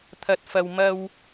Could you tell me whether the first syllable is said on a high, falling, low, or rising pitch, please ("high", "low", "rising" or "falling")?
low